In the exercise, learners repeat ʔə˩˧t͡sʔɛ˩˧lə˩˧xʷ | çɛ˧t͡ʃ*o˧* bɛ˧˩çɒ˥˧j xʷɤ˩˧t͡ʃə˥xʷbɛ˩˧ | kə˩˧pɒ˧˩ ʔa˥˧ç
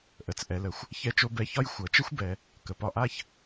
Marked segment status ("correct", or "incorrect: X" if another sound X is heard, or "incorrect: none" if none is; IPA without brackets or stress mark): correct